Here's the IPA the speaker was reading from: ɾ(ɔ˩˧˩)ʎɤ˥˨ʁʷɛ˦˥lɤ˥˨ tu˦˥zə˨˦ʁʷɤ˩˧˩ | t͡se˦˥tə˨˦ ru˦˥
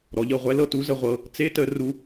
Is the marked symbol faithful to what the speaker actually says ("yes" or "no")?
yes